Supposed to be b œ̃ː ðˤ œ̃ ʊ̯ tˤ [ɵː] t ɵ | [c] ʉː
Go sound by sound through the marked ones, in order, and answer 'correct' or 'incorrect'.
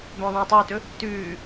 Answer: correct, incorrect: t

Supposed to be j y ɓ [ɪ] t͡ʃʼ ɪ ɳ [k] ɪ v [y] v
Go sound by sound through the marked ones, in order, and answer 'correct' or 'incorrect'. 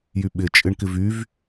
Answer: correct, correct, correct

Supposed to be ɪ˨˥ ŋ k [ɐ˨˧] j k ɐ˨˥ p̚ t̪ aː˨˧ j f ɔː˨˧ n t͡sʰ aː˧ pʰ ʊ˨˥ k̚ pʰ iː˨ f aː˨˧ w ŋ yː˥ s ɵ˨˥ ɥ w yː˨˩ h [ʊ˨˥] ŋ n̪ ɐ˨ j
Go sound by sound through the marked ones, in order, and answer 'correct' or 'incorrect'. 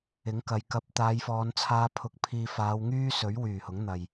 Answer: correct, correct

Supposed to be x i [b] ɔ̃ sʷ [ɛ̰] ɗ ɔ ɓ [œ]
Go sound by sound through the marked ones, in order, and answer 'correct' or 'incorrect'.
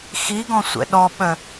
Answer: incorrect: ɡ, correct, correct

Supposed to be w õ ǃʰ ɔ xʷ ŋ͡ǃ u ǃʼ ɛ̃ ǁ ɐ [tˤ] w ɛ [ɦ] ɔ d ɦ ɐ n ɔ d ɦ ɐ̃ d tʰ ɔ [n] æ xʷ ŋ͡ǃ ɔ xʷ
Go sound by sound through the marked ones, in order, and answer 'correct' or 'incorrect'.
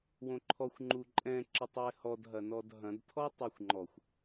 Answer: correct, incorrect: h, incorrect: tˤ

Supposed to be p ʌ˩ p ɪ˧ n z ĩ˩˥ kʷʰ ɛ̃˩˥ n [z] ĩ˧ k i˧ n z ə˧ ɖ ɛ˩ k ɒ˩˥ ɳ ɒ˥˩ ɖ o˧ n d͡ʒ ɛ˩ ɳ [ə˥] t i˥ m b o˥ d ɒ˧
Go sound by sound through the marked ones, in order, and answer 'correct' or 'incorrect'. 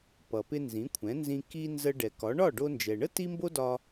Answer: correct, correct

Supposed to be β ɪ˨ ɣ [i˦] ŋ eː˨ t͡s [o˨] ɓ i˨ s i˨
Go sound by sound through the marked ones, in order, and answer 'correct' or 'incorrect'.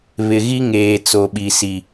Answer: correct, correct

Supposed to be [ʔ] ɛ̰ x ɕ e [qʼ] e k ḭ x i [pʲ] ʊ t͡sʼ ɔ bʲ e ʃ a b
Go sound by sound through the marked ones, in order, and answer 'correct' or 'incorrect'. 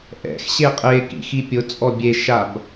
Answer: correct, correct, correct

